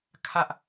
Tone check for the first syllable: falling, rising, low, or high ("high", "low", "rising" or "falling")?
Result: high